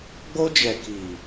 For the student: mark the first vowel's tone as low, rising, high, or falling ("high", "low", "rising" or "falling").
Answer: high